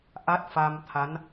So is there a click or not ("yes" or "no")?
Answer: no